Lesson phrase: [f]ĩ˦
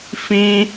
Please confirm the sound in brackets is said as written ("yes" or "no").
yes